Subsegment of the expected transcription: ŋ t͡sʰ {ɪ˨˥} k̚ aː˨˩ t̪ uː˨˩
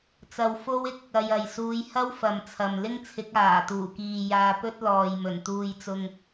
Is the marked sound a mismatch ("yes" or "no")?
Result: no